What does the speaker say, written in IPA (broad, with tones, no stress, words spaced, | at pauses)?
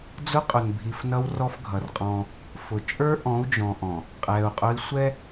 d͡zʊ˦qʼʊ˨nbʱi˨fnʌ˦w rɔ˦fɡʱʌ˨rqʼɔ̃ː˦ | fʊ˨ t͡ʃʼə˞˦ʔɔ̃˨˦u̯d͡ʒɔ̃˨ʔɔ̃˨ | qʼɛː˨u̯qʼʊ˦i̯ sʷɛ˦